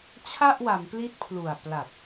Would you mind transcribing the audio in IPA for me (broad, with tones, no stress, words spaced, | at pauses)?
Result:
t͡ɕʰa˥˩ʔwa˩˦mpli˦˥t̚ pʰlu˨˩a̯pla˨˩t̚